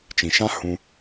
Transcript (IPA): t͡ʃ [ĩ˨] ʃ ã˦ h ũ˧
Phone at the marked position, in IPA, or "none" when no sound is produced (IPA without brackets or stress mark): ĩ˨